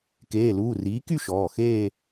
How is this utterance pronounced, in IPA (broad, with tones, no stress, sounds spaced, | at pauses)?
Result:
k eː˩˧˩ l uː˩˧˩ r iː˩˥ k y˥˧ ʃ ɔː˩˧˩ x eː˥˧